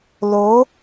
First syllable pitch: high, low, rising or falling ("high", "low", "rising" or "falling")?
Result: rising